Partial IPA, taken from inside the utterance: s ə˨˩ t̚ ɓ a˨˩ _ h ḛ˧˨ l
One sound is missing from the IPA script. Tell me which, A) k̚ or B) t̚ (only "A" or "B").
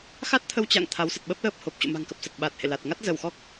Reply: B